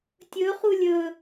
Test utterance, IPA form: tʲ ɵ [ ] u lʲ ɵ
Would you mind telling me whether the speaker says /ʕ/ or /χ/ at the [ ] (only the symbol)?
χ